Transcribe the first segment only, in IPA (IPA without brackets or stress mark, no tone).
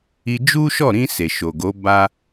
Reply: i